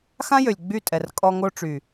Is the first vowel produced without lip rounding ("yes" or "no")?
yes